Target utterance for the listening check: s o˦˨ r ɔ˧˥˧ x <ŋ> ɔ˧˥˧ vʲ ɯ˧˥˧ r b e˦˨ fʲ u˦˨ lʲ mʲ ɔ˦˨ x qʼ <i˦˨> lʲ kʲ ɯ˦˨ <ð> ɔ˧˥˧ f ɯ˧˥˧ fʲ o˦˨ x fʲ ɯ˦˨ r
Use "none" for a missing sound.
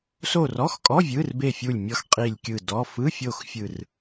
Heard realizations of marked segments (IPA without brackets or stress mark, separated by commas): kʼ, i˦˨, d